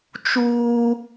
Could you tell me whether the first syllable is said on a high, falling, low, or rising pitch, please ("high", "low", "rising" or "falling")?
high